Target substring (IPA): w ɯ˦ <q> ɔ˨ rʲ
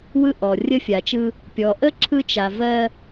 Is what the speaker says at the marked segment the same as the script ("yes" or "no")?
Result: no